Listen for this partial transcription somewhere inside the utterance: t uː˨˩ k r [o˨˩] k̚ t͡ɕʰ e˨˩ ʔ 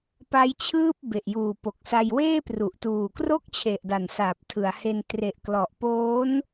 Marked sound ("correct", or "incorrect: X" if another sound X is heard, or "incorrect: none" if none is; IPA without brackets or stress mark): incorrect: o˥˩